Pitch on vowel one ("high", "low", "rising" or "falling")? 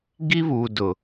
high